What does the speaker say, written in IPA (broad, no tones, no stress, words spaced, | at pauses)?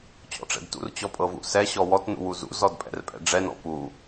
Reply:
t͡ɕɔ̰ʈ͡ʂɛ̰dtṵr t͡ɕɔpʼɤvṵsɛ ɕɔwɔt nṵwuzṵ zɔdpʼɛ̰rpʼɛ̰ɖ͡ʐɛ nɔ̰pu